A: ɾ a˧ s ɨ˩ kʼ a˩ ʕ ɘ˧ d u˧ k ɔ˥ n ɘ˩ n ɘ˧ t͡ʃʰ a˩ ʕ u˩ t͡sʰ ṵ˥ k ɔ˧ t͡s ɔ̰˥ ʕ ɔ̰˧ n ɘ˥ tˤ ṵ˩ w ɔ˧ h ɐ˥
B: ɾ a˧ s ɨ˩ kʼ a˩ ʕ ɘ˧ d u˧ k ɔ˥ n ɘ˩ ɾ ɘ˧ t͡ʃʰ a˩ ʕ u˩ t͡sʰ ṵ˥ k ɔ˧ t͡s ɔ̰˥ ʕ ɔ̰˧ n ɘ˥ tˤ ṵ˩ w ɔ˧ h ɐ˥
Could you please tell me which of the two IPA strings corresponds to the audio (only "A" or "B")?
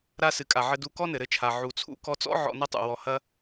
B